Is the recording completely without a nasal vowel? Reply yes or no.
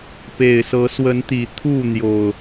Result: yes